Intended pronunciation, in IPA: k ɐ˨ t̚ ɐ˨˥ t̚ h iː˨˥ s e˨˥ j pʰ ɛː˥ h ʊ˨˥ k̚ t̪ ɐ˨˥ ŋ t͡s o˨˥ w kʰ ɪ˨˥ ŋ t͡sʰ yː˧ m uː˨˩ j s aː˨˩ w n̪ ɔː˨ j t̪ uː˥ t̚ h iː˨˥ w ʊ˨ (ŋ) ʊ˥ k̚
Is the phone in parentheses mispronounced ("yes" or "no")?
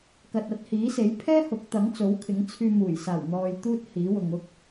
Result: no